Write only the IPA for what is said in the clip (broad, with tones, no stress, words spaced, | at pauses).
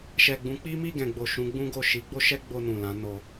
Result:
ʃɛ˨ɡ͡bũ˨˦k͡pi˦ mi˦˨ɡɛ̃˨ɡ͡bo˨ ʃũ˨˦ɡ͡bũ˦ɡo˦˨ ʃi˨˦ ɡ͡bo˦ʃɛ˦ɡ͡bo˧ nũ˨lã˨˦no˧